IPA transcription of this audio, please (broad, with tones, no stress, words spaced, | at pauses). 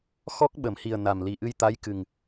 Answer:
xɔ˦˥k̚ɓə˨˩˨mhi˨˩ə̯ na˨˩mli˨˩ ʔɨ˧jt̪a˧˥jkɨ˨˩ŋ